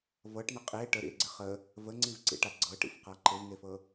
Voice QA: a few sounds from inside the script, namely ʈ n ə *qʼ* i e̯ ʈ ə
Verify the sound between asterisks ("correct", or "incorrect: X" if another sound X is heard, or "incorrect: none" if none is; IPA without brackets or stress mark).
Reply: correct